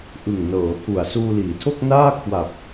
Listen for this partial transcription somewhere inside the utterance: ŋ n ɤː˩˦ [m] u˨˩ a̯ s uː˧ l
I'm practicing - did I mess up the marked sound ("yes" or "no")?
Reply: yes